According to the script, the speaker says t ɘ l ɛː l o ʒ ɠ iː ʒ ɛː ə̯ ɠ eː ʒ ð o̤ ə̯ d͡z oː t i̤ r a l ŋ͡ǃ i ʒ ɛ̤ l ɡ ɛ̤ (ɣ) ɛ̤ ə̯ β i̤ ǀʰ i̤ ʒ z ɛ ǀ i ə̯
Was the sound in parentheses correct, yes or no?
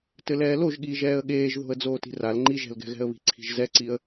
yes